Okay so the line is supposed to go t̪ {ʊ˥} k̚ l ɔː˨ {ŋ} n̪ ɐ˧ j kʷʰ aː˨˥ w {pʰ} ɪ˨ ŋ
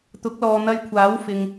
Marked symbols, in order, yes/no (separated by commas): no, no, no